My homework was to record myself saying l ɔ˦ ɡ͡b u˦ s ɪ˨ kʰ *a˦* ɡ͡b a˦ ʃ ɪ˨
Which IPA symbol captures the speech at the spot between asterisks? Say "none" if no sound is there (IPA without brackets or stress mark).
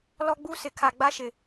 a˨